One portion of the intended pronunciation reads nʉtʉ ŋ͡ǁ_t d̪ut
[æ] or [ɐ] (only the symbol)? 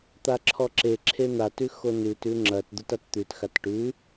ɐ